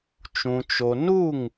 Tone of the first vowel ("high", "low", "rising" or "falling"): low